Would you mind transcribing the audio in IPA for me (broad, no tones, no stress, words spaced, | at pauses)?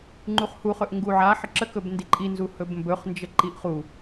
ŋ͡ǃuχhuχɵʔ ŋɡuʕa ħəǁəkɵb ndiǃʼinzu hɵbmbɵχnd͡ʒə ǃiʔχu